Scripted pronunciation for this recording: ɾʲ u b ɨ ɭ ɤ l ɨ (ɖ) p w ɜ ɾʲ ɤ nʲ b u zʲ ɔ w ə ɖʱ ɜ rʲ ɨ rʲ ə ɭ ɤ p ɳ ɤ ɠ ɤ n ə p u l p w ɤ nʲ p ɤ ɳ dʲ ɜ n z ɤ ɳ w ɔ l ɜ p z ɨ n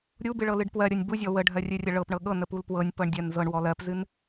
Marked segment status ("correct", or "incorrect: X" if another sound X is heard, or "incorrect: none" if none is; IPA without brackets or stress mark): correct